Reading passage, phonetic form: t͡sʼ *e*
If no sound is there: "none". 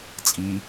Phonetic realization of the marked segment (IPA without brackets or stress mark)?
i